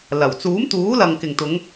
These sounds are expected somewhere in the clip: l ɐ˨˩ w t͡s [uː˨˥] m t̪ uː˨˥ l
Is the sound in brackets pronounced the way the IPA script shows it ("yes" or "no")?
yes